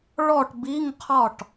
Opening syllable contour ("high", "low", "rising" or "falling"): falling